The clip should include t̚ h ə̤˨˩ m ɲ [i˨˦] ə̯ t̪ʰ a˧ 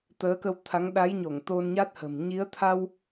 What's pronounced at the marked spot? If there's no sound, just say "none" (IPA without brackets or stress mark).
i˨˦